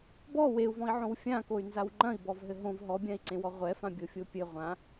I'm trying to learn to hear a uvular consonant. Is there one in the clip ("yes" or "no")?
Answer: yes